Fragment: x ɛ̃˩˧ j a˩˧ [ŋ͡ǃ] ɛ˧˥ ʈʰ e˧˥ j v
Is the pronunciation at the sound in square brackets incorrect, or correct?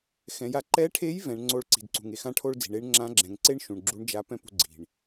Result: incorrect